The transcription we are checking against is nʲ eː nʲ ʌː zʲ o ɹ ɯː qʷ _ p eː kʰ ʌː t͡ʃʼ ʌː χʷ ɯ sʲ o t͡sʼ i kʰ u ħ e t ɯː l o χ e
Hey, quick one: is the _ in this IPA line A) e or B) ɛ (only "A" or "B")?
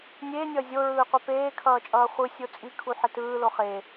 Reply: B